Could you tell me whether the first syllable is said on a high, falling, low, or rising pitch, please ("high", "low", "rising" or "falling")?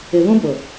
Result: low